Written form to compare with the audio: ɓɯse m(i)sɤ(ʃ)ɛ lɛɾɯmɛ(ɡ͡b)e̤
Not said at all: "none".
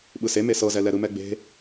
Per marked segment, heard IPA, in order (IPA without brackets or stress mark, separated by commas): e, z, ɡ͡b